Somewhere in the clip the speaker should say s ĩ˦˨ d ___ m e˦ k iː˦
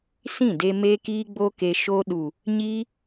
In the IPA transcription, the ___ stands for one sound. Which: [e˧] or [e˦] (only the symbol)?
e˧